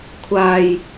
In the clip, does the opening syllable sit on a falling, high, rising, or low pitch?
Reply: low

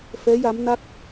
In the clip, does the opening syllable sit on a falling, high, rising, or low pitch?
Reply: rising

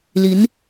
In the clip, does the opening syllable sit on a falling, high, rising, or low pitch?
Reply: rising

